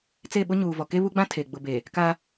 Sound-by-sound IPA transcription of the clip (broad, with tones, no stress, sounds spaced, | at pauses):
t͡s e˦˨ ɓ ʊ˦ ɲ uː˨ v ɔ˨ k e˦ β u˦ ɡ͡b ã˦ tʰ e˨ ɡ͡b ʊ˨ b e˨ | k a˦